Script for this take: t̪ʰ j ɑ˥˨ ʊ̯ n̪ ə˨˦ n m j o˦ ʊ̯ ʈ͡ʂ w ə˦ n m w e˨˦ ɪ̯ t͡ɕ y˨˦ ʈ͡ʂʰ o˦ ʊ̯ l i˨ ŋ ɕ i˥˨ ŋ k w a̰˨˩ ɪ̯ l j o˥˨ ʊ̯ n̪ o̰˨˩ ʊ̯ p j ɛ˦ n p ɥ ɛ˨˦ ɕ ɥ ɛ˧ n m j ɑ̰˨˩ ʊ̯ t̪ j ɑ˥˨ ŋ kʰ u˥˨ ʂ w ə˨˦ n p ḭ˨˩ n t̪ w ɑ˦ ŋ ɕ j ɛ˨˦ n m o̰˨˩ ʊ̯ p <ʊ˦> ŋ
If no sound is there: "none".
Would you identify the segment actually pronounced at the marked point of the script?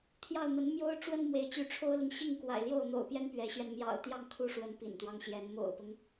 ʊ˦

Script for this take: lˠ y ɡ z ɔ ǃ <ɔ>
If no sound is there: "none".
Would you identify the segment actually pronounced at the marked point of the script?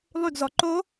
o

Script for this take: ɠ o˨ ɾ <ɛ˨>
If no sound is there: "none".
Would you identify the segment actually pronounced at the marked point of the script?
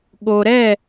ɛ˦˨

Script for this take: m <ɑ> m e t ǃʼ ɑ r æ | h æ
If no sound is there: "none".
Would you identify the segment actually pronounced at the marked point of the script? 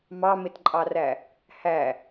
ɑ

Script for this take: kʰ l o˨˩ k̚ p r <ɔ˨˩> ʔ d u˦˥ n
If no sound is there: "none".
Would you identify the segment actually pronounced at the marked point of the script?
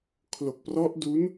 ɔ˦˥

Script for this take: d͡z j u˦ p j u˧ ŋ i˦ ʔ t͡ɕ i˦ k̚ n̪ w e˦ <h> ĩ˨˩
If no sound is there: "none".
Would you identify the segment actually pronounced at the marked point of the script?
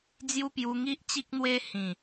h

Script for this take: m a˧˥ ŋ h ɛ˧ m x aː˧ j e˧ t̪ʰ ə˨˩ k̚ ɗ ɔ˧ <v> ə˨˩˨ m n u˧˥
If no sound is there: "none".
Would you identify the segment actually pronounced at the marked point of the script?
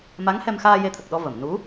v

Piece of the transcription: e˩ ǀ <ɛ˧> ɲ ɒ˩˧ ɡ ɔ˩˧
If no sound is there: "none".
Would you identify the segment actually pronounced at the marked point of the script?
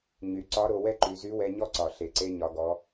e˧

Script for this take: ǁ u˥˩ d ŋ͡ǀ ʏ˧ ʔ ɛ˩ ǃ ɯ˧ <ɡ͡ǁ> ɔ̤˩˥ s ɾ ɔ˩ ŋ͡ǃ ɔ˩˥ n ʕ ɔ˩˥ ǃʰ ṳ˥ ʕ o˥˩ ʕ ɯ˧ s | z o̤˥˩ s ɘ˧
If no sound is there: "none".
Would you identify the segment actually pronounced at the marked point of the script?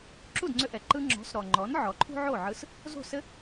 ŋ͡ǁ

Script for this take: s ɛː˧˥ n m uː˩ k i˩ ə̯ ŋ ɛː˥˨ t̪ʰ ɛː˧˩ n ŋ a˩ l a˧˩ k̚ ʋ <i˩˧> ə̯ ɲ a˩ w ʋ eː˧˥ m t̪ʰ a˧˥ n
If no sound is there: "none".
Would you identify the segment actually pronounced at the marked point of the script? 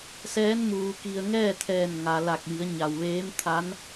i˩˧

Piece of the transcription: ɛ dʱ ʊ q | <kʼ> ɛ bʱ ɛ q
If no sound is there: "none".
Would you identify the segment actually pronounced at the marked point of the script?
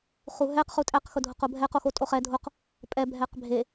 pʼ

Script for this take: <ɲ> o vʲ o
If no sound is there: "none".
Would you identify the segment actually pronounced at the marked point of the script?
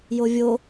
j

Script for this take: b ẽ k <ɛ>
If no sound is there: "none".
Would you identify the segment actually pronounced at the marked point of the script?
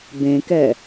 ɛ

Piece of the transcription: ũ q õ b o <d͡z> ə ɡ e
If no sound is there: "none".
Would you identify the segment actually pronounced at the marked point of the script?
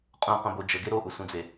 d͡ʒ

